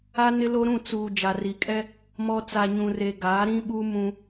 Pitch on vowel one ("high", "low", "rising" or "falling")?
high